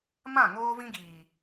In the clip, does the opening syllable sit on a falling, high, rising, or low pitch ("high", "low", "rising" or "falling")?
falling